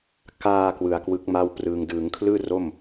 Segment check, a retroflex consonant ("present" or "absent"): absent